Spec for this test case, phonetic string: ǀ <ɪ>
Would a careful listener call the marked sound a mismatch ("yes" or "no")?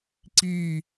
yes